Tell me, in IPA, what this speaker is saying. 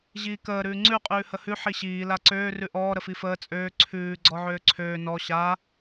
ʑiːkəː ɾʉːŋ͡ǀʉ qʼʉːhəhʉ ħiɕiː laǀøː rʉʔɔː ɾəfifəː t͡sʼøː ǀʰʉː ɡ͡ǀɔʕøːǀʰøː nɔ ɕa

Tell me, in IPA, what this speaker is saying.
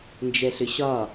nd͡ʒɛɬʏɕɒ

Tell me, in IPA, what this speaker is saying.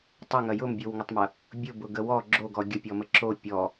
tˤəŋɐ jʊmbʲowŋətˤmɐ | bʲʊbʊɡə wɔ ɡ͡ǁoɡɔ ɡʲəpʲɔmə ǁo pʲɔ

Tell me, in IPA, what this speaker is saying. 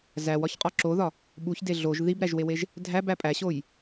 zæwɒçqʼɒ ǁoðɒ | ɓuçde ɮoʒ ðibɾæʒweweʒ | dʱæbæ pʼæɕoj

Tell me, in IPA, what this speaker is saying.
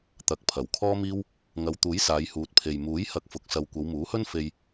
t̪ɐ˨k̚ pʰɐ˨˩wkʰɔː˥miː˥w | ŋɐ˨˧wt̪uː˨˥j saː˨˧jhuː˨˥t̚pʰe˨j muː˨˥jhɐ˨˥k̚ fʊ˨k̚sɐ˧w kʷɐ˨˧wmuː˨˥hɵ˥nfe˧j

